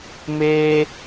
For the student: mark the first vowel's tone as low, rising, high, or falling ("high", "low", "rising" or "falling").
high